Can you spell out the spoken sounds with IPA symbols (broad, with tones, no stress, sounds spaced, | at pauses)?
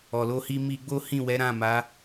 ɔ˨ l o˧ h i˧ m i˧ ɡ͡b o˦ h ĩ˦˨ w ɛ˨˦ ɾ ã˦˨ m a˨˦